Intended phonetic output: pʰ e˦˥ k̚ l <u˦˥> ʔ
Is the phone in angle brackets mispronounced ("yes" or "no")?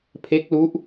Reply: no